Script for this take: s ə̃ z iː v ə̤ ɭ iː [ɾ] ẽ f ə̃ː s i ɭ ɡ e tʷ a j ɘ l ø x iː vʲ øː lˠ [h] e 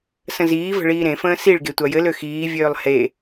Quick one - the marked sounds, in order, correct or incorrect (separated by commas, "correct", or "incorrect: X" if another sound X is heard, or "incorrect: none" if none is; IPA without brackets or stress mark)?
correct, correct